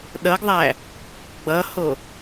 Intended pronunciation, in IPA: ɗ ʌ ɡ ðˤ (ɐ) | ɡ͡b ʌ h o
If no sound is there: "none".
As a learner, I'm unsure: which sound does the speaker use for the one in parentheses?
æ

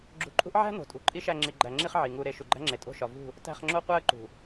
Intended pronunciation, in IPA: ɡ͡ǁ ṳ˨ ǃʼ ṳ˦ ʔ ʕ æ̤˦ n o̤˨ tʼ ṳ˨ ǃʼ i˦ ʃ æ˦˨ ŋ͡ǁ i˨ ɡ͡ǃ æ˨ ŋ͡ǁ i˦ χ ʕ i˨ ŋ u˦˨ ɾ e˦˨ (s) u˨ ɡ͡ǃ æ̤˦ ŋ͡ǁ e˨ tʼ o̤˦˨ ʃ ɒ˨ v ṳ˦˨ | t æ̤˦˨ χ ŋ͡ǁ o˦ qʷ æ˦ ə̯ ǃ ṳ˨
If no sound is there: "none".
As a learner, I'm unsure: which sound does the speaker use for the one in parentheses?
ʃ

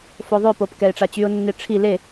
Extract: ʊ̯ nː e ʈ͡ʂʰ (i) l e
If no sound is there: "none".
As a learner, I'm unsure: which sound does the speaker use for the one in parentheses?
i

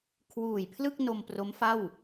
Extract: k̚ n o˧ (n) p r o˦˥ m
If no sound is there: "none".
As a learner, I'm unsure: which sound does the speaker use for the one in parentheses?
m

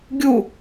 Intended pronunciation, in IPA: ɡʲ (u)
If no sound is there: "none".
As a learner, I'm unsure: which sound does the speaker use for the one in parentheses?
u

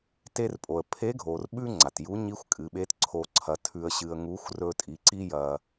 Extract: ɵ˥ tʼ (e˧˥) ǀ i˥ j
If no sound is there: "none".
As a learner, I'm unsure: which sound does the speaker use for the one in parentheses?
i˧˥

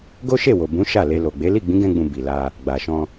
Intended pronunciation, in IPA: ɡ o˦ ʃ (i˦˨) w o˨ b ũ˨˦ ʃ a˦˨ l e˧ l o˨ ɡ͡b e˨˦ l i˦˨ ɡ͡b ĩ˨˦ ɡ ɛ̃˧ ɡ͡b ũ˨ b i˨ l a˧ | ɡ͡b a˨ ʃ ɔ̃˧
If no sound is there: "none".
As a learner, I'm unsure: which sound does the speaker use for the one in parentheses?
e˦˨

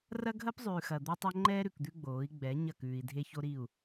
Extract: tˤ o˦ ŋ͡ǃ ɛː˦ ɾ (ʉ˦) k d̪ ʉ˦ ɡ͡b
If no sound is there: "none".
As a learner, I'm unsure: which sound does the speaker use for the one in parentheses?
ʉ˨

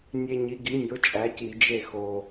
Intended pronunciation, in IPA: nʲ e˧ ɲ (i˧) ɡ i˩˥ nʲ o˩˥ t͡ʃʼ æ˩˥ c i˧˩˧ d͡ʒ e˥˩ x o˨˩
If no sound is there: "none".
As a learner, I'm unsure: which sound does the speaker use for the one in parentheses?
i˩˥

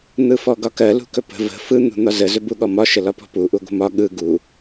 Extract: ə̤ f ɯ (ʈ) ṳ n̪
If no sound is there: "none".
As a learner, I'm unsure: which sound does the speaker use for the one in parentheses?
n̪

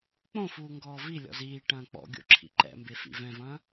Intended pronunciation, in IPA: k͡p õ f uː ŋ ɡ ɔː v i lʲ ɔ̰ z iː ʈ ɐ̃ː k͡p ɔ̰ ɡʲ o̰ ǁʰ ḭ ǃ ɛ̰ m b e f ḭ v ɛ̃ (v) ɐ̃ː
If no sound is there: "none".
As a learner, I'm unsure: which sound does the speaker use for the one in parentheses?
v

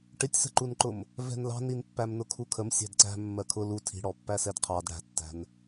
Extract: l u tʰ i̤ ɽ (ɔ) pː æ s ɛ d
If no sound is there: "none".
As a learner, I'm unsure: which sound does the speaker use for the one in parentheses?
ɔ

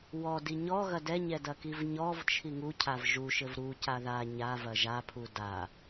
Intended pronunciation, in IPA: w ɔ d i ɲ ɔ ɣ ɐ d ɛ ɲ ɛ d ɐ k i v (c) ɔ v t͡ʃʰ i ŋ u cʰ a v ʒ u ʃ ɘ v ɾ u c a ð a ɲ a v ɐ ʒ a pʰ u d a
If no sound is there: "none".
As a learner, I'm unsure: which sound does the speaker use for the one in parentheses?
ɲ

